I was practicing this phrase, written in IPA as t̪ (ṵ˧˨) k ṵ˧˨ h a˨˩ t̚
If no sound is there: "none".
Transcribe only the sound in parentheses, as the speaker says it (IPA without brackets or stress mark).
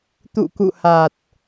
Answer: ṵ˧˨